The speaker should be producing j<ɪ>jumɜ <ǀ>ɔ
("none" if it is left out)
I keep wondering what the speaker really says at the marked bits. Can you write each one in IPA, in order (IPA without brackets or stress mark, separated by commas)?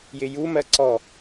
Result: ɪ, ǀ